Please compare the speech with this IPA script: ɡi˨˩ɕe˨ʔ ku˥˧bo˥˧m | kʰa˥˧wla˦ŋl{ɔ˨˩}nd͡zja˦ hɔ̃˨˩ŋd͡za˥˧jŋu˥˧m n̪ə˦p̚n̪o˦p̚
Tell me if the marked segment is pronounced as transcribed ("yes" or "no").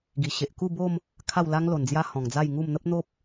no